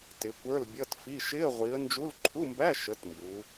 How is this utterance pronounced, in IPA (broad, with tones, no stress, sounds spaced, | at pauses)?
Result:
t ɪ˨˦ kʷ ə˞˧˥˧ l bʲ ʌ˧˥˧ t f i˧˥˧ ʃ ɪ˧˥˧ ə̯ ʁʷ i˨˦ ə̯ n d͡ʒ u˧˥˧ l ǃʰ u˧˥˧ m b æ˧˥˧ ʃ ə˨˦ t m b u˨˦